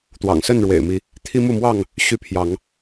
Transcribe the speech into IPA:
t̪ w ɑ̰˨˩ ŋ s ə˥˨ n ɻ w ḛ˨˩ ɪ̯ m i˨˦ | t̪ʰ i˦ m u˥˨ m w ɑ˥˨ ŋ | ɕ y˦ pʰ j ɑ˨˦ ŋ

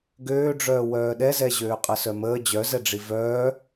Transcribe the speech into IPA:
ɡ øː ɖ͡ʐ œː w œː ɗ ɛ z ɛ ʑ øː qʼ ə s œ m əː d͡ʑ œ z ɛ ɖ͡ʐ i v œː

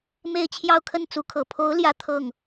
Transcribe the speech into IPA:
m e˥˧ ɪ̯ t͡ɕʰ j ɑ˥˧ ʊ̯ kʰ ə˥˩ n t͡s u˧˥ kʰ ɤ˨˩ pʰ o˧˥ ʊ̯ l j ä˥˧ t̪ʰ ɤ˥˩ ŋ

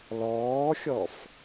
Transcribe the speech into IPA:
l ɔː xʲ ɔ f

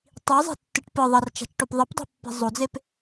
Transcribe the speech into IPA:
tˤ i zˤ e̤ tː ɨ ʈ p ɨ ðˤ ɐ r t͡ʃ a̤ t͡ʃ ʈ o p ðˤ ɘ p dˤ e̤ pː i̤ zˤ o d͡z e p

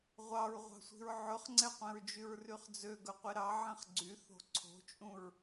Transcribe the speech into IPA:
ʁʷ ɑ ɹ ʁʷ ɑ̤ sʷ i̤ ɹ ʕ ɵ χ ŋ͡ǀ ɛ qʷ ɛ̃ ɹ d͡ʒ y ɹ r y χ d͡z ø ɡ œ qʷ i ɾ ɑ ʕ ɛ̃ χ ɡ͡ǀ y θ o̤ ǀʰ o̤ t͡ʃʼ ũ ɹ

